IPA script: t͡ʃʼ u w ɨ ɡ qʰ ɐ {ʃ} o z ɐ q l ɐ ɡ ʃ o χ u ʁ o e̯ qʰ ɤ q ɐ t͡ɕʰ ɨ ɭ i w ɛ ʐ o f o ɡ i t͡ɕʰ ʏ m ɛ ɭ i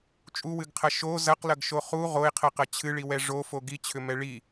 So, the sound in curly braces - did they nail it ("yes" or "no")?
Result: yes